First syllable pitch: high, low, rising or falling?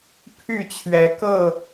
falling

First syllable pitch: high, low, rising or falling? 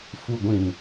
low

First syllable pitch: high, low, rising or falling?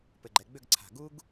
low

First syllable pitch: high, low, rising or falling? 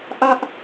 high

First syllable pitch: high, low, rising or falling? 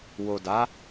low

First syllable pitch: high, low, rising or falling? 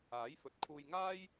rising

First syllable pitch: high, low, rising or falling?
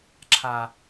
low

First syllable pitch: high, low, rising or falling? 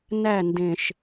falling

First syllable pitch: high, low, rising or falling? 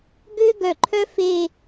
high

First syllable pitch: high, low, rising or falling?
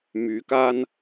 rising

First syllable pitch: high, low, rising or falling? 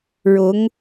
rising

